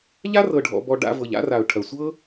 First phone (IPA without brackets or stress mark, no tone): ʎ